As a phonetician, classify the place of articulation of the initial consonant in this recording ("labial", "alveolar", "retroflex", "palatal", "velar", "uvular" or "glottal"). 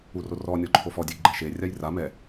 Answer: alveolar